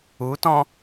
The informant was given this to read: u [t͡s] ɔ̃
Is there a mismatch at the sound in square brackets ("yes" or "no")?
yes